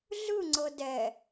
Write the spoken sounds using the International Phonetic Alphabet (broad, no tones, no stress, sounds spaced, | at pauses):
ɮ ɯ ŋ͡ǀ ɤ d ɛ